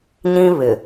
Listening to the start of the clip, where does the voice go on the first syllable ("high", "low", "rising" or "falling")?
high